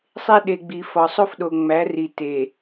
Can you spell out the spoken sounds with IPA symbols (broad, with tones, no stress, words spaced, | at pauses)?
sˤe˦ɗe˨ɡ͡bi˨ fɒ˨sˤo˦fɗo˨ ŋ͡mæ˨˦ri˨ te˨